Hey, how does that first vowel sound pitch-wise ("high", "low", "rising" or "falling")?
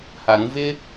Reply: low